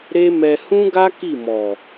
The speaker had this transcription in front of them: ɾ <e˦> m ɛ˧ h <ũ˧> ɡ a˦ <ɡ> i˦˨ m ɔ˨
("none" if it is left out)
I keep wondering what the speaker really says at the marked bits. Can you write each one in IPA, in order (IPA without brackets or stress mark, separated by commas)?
e˦, ũ˦, k